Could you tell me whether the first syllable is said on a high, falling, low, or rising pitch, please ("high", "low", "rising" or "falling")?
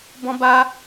high